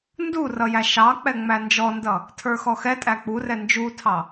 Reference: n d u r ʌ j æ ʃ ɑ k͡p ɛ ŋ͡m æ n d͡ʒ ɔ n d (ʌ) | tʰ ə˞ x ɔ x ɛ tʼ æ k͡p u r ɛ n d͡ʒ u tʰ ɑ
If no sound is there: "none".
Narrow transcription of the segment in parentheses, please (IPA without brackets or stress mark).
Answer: ʌ